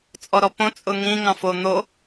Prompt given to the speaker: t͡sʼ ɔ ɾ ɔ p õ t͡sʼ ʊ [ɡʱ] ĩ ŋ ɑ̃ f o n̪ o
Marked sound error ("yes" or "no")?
yes